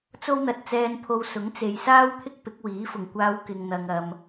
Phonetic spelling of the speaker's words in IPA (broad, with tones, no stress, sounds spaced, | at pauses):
t͡s o˥ w n̪ ɐ˨˥ t̚ t͡s ɛː˧ n pʰ o˧ w s ʊ˨˥ ŋ t͡s e˨ j s aː˥ w t̪ʰ ɪ˥ k̚ p ɪ˨˥ k̚ w iː˨˥ f ʊ˨˩ ŋ kʷ aː˧ w k ɪ˨ ŋ n̪ ɐ˨ ŋ ɐ˨ m